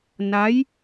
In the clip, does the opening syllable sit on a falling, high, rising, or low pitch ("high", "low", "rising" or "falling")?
rising